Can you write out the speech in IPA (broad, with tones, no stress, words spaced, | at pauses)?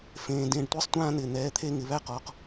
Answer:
fẽː˩ dẽ˩˧˩ɖtʷɪː˥sˤtʷãː˥˧ n̪ɪː˩n̪ɛː˩˧˩ t̪ʰe˥˧ŋɪ˩˧˩βæ˥qɔː˩˧˩q